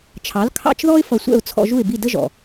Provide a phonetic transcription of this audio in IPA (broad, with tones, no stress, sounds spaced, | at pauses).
t͡ʃʰ ɑ˩˥ l kʰ ɑ̰˥˩ t͡ʃ ð ɔ˥ ɪ̯ f ʌ˧ sʷ ɛ̰˥˩ ʊ̯ t͡sʰ ɔ̰˧ ʒ u˥˩ ɪ̯ b i˥˩ d ə˥ ʒ ɔ̰˩